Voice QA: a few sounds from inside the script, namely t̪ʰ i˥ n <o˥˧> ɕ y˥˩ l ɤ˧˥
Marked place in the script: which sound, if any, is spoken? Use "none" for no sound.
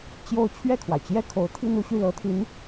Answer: u˥˧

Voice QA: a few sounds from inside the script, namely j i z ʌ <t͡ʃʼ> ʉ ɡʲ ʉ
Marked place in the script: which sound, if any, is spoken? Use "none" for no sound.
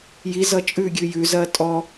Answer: t͡ʃʼ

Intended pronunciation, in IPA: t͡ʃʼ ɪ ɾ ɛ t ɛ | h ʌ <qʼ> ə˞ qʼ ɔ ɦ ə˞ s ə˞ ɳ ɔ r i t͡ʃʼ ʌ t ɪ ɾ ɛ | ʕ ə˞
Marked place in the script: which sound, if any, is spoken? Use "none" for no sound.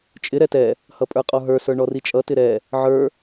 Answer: pʼ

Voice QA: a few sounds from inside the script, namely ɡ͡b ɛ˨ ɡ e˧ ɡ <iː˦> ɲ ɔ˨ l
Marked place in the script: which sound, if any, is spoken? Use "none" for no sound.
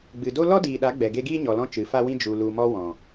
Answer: iː˦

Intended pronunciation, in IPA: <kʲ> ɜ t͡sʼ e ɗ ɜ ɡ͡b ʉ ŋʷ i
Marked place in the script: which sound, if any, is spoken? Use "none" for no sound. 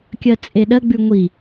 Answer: kʲ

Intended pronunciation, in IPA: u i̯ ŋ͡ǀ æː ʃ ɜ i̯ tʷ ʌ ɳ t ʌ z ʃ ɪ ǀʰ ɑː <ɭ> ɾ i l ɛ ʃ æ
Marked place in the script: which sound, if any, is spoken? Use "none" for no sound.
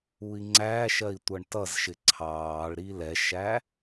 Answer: ɭ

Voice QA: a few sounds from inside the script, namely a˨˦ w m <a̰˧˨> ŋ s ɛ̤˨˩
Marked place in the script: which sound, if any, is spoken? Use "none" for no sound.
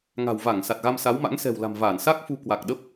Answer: a̰˧˥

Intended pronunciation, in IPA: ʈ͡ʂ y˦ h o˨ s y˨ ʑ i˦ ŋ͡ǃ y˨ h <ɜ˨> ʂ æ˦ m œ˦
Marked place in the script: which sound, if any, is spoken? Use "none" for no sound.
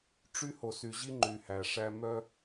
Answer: æ˨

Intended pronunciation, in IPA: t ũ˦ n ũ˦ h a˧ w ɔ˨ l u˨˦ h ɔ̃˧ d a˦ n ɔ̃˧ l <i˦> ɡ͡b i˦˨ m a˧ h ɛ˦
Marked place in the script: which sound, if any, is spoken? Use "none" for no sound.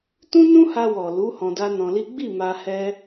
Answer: i˦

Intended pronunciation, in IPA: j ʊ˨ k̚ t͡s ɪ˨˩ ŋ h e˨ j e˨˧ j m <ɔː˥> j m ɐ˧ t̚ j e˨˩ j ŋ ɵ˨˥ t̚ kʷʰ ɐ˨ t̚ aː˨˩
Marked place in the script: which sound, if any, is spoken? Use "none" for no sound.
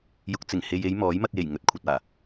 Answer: ɔː˨˥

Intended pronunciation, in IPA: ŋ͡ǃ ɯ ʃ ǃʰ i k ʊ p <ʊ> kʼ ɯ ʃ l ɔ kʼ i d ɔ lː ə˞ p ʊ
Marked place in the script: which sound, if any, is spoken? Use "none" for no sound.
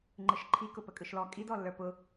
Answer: ə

